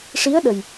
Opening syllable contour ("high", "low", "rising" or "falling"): rising